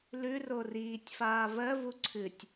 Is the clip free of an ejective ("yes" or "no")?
yes